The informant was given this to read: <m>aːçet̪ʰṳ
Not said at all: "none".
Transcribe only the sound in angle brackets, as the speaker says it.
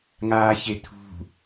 ŋ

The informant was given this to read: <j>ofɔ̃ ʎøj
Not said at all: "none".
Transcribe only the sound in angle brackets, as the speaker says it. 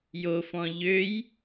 j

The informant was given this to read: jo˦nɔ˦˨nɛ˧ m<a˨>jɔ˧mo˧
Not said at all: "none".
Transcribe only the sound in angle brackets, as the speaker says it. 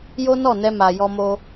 a˨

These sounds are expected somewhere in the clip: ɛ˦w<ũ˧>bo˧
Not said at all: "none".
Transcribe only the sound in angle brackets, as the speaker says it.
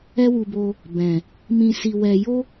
u˧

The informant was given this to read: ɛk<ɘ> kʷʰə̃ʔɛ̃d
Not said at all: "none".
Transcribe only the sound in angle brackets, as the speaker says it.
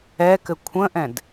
ɘ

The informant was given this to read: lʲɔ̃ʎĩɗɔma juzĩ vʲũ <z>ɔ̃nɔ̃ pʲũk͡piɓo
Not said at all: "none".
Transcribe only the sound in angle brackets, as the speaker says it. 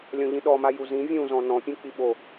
z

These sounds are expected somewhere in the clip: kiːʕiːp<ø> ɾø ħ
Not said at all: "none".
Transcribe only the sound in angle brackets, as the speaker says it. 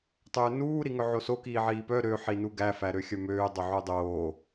œ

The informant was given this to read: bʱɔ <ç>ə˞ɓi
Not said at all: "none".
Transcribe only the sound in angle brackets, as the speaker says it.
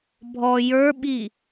j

